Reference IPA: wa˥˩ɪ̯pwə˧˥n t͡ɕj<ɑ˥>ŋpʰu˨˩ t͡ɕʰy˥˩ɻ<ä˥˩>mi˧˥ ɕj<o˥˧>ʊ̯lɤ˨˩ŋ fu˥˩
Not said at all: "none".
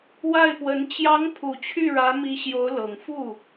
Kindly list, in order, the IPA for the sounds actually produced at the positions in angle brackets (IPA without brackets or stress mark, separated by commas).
ɑ˧˥, ä˧˥, o˧˥